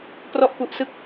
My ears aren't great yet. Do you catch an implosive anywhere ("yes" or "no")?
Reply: no